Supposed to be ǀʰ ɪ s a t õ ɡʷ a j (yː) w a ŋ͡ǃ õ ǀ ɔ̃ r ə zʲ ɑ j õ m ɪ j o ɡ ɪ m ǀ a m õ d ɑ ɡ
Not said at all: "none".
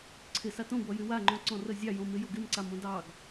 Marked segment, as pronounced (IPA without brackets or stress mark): y